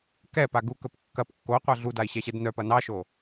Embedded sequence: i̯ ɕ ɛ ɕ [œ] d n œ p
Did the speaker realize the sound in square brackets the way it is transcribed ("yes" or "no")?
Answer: no